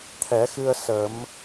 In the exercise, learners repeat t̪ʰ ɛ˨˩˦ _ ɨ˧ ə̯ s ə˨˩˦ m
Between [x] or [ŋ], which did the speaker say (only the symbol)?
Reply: x